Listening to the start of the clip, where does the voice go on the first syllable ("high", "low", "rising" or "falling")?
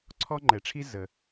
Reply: high